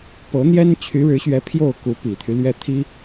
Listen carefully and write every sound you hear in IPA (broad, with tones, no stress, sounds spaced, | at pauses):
p ɤ˧˥ n̪ j ɛ˥ n t͡ɕʰ y˧˥ ɻ ɻ̩˧˥ ɕ ɥ ɛ˧˥ pʰ j o˥˩ ʊ̯ k u˧˥ p i˨˩ t̪ʰ y˦ l ɥ ɛ˥˩ t̪ʰ i˥